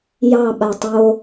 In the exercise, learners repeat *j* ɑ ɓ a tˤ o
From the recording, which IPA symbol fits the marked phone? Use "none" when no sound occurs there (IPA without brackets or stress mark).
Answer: j